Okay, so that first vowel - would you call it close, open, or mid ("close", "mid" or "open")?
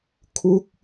close